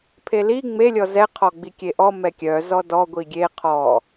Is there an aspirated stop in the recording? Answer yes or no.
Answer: yes